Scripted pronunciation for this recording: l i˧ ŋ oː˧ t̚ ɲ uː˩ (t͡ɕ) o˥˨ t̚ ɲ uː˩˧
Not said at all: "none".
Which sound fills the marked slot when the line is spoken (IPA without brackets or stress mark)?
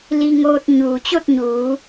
t͡ɕ